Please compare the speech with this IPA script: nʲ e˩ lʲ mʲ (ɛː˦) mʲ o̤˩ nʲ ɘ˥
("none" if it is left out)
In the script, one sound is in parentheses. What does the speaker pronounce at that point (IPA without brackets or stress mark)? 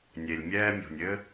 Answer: ɛː˦